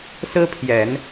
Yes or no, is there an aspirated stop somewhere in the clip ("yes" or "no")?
yes